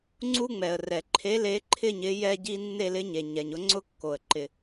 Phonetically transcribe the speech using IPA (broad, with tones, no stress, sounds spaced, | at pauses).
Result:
ŋ͡ǀ u˥ ŋ͡m ɛ˩ ə̯ r ɛ˩ ǃʰ e˧˥ l e˧˥ ǃʰ ɪ˥˧ ɲ ɪ˧˥ j ɛ˥ ɟ i˥ nː e˥˧ l ɪ˧˥ ɲ e˩ ɲ ɛ˩ ɲ ʊ˧˥ ŋ͡ǀ ʊ˥ kː o˩ ə̯ ǃ ɪ˩